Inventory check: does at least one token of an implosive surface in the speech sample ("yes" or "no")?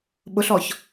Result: yes